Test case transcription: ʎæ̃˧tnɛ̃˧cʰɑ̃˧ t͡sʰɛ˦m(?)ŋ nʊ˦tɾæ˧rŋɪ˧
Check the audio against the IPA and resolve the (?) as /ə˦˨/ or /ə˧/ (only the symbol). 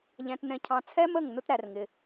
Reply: ə˦˨